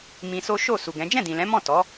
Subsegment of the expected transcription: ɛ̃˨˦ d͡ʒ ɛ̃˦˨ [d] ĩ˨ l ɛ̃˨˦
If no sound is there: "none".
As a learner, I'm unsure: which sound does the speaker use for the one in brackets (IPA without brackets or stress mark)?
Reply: d